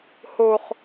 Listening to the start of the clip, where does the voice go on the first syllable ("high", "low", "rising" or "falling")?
high